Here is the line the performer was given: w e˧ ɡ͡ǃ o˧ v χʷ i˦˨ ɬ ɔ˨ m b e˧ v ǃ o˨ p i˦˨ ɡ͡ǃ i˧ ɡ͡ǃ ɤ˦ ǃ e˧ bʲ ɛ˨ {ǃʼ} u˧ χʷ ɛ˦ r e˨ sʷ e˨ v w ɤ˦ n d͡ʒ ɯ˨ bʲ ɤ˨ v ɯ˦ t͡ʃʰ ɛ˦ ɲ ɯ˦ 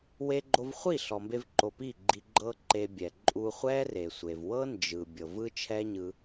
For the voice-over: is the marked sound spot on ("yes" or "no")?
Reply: yes